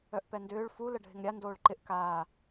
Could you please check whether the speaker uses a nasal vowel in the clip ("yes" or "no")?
no